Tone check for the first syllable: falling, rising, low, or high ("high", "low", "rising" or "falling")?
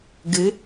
rising